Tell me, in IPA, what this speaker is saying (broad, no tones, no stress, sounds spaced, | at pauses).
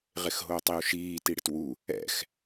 ʁ ɪ x ɦ oː tˤ i u̯ ʃ iː t i ɽ ɪ t w u | ɛ̰ x